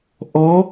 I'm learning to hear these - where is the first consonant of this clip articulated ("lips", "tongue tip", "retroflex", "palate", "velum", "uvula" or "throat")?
throat